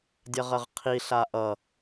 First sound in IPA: dʲ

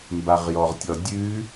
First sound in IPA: m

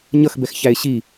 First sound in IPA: ɲ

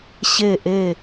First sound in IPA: ɕ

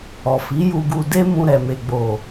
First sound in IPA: ɔ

